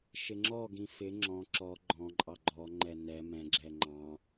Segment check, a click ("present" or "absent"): present